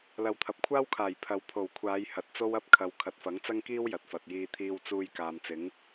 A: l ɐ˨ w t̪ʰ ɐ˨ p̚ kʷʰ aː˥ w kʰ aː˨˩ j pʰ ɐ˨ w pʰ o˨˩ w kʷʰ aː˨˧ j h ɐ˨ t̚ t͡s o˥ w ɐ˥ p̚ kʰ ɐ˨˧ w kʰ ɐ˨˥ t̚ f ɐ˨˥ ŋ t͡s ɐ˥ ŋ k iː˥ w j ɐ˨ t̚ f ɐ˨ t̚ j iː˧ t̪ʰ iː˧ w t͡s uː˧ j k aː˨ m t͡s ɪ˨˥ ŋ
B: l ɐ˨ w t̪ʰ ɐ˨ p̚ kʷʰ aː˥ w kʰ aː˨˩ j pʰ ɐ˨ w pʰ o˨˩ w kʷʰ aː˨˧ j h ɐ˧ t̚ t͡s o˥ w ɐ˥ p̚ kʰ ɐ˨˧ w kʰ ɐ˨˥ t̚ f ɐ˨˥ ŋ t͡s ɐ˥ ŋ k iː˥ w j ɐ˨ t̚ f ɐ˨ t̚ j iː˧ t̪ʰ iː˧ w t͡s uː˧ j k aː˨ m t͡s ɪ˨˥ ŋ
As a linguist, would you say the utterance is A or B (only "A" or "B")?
A